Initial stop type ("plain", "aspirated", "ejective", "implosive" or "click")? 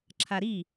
click